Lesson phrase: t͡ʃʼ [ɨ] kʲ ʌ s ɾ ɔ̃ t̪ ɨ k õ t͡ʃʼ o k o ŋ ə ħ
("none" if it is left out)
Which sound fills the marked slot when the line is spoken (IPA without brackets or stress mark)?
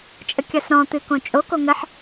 ə